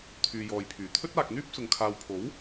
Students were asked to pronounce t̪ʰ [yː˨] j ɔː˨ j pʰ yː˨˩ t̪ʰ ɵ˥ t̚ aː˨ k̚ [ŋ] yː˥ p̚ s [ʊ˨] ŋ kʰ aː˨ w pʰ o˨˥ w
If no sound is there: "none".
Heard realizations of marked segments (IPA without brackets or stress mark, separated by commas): yː˨, n̪, ʊ˨